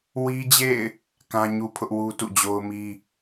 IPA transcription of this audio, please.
wi˦d͡ʑḛ˦˨ɪ̯ | kã˦ɲu˦pʰʊ˦ʔ wu˦tṵ˦˨d͡ʑo˦ʊ̯mi˦

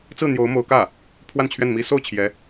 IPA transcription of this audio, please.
t͡sɹ̩˥˩n̪jo˧˥ʊ̯ mo˧˥ʊ̯kä˥˩ | pʰwa˥˧nt͡ɕʰɥɛ˥˩nmi˥ so˥˩ʊ̯t͡ɕʰjɛ˧˥

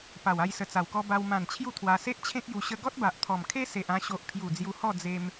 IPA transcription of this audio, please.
pa˨˩wa˧jsə˨˩ t͡sa˨˩wkɔ˧ ba˧w mã˨˩n t͡ɕʰju˥˧t̪ʰwa˧ se˦ʔt͡ɕʰẽ˦k̚ju˧ ɕə˧ɡɔ˦t̚ba˨ʔt̪ʰɔ˨˩m kʰe˦se˨ʔã˧ɕo˨ʔ pʰju˨˩ d͡zju˧hɔ˥˧ d͡ze˧m

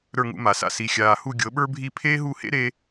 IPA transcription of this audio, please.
ɾə˞˥˩ŋṵ˧ma˩sa̰˥˩ si˩xʲaː˩hu˥˩ ɡʲɤ˩˥ɓə˞˥bʱi˥˩ pʰeː˥ɦu˥˩hḛ˥ɾe˧

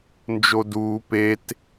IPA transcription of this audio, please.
nd͡ʒoduː pet

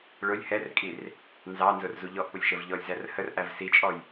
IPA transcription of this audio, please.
ɭʊlʲ hɛrkʼir | nzɑnzʊrzu ʎɔʔpʊlʲʃəv ʎɔlʲzær hərʔæv sit͡ʃʼɔj

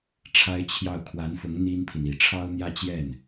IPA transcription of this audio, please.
ʈ͡ʂʰa˥ɪ̯t͡ɕʰjɑ˥˩ʊ̯ kʰwa˧˥nfʊ˧˥ŋ n̪i˥npʰi˨ni˨˩ ʈ͡ʂʰɑ˥ʊ̯n̪jä˥˧t͡ɕjɛ˥˩n

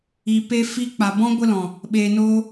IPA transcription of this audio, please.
i˨ pe˧ fi˧k͡pa˨bɔ̃˦ ɡʷə˧lɔ̃˨ | ɓeː˨no˧

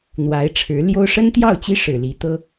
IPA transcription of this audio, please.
n̪wa˧˥ɪ̯ʈ͡ʂʰɻ̩˧˥ljo˥ʊ̯ ʂə˥nt̪jɑ˥˩ʊ̯ t͡ɕi˥ʂɻ̩˨˩ li˧˥t̪ɤ˥

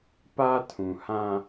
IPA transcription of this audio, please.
pa˦tʰũ˨hã˦

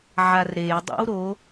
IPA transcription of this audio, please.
ʕarɾejdˤḭw ɾo

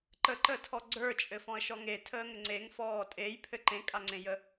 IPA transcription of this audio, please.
ǃəǃəːtʰɔ ɡ͡ǀə˞t͡ʃʼɘfɔ̃ə̯ʃɔ ŋetʰəːŋɘ ŋ͡ǀeŋfɔː tʼejpʰɘ ǃẽkʼaŋ͡ǀẽjə

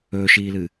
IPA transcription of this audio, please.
ɵːʃiːlɨ

